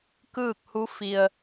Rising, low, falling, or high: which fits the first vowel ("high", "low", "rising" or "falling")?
falling